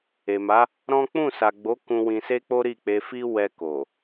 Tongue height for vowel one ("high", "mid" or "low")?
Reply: mid